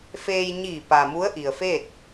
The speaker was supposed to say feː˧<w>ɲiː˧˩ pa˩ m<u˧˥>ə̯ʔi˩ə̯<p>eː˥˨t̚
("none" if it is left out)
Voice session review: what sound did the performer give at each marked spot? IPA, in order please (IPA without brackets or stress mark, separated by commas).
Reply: j, u˧˥, f